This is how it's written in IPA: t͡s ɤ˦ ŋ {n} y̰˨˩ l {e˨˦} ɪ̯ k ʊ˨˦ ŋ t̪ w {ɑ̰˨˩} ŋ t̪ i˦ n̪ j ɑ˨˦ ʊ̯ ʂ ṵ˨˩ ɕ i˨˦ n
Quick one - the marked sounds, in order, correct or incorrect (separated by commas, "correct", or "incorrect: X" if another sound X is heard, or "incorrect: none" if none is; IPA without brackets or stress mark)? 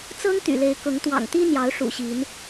incorrect: t̪, correct, correct